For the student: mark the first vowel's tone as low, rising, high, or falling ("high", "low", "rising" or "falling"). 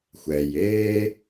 low